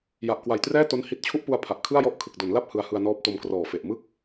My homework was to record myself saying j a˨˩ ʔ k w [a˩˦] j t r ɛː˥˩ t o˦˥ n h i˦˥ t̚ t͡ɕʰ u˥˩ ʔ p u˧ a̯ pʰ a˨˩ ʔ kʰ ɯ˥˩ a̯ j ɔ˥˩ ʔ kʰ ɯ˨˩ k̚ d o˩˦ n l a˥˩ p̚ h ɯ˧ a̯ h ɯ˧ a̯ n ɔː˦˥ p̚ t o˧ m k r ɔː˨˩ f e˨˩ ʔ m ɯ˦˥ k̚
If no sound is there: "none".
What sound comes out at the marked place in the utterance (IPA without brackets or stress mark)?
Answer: a˨˩